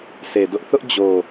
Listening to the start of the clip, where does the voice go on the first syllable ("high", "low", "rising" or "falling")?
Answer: low